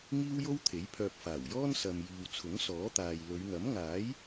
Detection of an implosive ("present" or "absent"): absent